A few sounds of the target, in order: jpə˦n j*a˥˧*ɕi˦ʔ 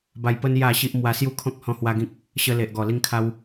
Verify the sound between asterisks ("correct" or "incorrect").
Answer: correct